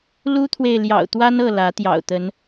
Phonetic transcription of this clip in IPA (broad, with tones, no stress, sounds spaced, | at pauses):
l u˦ t̪ʰ w e˨ ɪ̯ l j ɑ̰˨˩ ʊ̯ t̪ w a˦ n ɤ˥˨ l ä˨˦ t̪ j ɑ̰˨˩ ʊ̯ t̪ ə˨˦ n